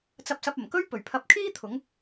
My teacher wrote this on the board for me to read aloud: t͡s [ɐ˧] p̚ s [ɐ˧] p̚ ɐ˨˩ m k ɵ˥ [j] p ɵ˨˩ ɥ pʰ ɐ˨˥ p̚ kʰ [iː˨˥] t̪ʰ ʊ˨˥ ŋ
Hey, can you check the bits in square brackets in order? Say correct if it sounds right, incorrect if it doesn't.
correct, correct, incorrect, incorrect

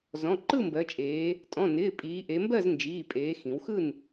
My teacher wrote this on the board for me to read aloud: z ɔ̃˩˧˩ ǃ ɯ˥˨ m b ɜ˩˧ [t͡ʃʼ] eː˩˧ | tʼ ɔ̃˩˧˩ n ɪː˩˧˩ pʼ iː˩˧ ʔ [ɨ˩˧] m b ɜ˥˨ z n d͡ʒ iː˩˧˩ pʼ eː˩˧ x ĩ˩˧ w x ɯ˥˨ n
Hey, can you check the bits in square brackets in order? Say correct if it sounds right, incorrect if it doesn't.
correct, incorrect

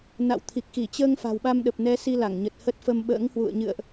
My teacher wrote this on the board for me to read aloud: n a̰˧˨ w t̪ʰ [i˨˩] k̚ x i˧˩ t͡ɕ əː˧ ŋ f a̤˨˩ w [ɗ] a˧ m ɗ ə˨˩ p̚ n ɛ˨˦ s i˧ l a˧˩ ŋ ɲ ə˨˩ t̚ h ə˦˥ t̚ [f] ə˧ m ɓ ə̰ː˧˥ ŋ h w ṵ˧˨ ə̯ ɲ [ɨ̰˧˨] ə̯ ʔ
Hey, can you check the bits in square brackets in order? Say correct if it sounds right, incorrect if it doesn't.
correct, incorrect, correct, correct

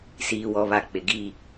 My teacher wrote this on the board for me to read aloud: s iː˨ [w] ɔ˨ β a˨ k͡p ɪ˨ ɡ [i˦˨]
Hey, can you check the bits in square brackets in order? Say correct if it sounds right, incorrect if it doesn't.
correct, correct

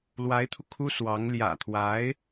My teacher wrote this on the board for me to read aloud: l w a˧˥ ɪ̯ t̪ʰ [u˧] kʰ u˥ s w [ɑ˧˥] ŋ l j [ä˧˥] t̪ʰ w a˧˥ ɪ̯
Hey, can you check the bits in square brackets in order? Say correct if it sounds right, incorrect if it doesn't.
correct, correct, incorrect

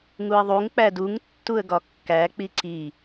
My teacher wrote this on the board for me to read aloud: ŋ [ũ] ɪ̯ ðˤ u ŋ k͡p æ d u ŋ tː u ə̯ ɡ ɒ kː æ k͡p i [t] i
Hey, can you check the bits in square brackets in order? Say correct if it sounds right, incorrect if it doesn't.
incorrect, incorrect

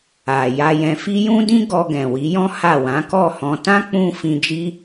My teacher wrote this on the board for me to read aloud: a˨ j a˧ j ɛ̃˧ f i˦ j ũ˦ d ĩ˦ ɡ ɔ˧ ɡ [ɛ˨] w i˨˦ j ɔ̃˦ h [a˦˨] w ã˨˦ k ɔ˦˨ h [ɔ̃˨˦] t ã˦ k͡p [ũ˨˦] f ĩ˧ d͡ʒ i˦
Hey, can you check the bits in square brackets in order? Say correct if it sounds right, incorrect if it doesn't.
incorrect, correct, incorrect, incorrect

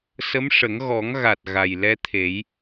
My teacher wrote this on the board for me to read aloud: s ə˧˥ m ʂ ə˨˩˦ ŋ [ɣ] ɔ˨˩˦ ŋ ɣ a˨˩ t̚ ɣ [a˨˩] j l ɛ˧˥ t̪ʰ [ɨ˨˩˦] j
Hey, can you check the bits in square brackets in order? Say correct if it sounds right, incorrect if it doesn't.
correct, correct, incorrect

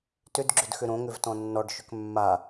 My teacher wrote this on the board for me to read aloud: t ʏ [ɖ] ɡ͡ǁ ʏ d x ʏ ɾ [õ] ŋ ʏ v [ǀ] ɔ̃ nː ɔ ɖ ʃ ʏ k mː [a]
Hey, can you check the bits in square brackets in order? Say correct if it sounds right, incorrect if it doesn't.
incorrect, correct, incorrect, correct

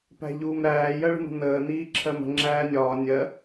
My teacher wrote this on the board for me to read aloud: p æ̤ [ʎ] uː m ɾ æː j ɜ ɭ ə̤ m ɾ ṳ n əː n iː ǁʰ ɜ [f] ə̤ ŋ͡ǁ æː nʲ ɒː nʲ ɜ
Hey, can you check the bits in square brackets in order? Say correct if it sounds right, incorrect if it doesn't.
correct, incorrect

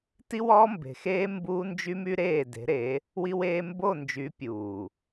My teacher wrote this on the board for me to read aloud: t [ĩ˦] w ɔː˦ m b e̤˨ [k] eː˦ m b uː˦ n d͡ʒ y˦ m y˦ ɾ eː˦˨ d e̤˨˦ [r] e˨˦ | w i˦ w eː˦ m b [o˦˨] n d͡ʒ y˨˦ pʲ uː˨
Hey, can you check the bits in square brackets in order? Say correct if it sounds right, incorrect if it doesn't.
incorrect, incorrect, incorrect, correct

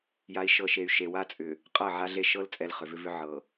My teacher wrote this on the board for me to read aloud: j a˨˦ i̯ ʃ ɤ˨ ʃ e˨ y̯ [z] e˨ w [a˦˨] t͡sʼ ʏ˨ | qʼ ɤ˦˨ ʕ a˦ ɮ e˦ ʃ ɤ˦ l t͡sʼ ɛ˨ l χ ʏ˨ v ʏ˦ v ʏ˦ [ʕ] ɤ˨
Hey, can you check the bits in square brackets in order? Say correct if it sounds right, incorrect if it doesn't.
incorrect, incorrect, correct

